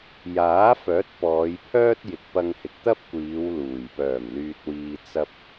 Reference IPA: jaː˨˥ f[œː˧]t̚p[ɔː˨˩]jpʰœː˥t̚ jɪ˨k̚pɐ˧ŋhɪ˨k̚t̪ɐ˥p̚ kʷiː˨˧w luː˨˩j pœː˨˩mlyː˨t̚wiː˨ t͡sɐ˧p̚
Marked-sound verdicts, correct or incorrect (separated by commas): incorrect, incorrect